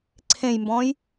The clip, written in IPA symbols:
ǀʰ ẽ j m b ɔ̃ː j

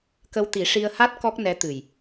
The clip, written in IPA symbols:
k ə˧ w t̪ i˨˩˦ ʂ i˧ ə̯ h a˦˥ t̚ k ɔ˦˥ k̚ n ɛ˧˥ t̪ ɨ˨˩ j

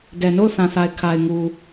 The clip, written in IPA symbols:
d ɛ˨ n o˦˨ ʊ̯ θ ã˨ θ a˨ ɪ̯ kʰ a˨ ɪ̯ ŋ u˨

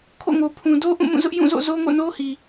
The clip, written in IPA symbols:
kʰ o̰˦˨ ŋ o˨ pʰ ũ˨ d o˦ ʔ ũ˦˨ m ũ˦˨ z ʊ˦ ʔ j ũ˦˨ z o̰˦˨ z o˦ ŋ o̰˦˨ n o˦ h i˨

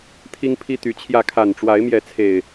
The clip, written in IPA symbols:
t̪ʰ i˦ ŋ pʰ i˦ t̪ y˨˦ t͡ɕʰ j ä˥˨ kʰ a˨˩ n ʈ͡ʂ w a˨˦ ɪ̯ m j ɛ˨˦ t͡sʰ e˨˩ ɪ̯

